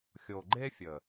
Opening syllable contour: low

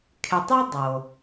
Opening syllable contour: low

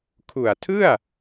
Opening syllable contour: low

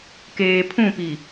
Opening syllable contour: low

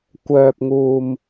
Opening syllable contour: low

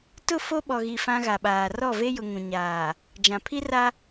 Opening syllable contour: falling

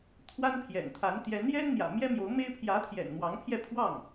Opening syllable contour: high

